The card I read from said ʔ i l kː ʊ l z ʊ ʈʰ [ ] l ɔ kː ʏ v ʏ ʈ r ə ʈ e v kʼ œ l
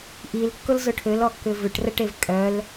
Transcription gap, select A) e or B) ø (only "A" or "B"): B